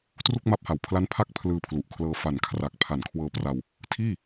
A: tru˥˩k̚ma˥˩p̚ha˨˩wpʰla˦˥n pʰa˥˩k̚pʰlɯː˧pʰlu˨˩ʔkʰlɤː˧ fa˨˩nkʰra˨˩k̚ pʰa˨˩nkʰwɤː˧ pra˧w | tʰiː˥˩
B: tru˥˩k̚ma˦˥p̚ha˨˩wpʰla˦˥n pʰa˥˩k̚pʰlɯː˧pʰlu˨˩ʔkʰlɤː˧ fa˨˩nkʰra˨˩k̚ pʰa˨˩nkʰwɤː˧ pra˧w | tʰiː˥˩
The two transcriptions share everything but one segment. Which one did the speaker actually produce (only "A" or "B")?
B